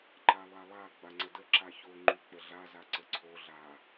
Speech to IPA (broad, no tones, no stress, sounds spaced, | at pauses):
ǃ a lˠ a lˠ a ɡ͡b a ŋ͡ǀ ə d ə ǁ a ç o ŋ͡ǃ y k͡p ə ɮ a z a ǀ ə ǀʰ o ɮ a